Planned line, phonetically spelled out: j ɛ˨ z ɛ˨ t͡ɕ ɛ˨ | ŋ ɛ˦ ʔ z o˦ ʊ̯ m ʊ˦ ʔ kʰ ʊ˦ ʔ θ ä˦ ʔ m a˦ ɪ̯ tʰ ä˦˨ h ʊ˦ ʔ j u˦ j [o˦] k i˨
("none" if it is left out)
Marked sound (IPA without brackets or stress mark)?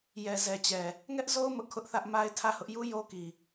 o˦